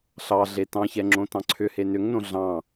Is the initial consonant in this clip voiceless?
yes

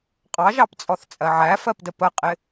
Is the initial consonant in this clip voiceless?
yes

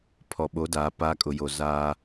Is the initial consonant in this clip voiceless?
yes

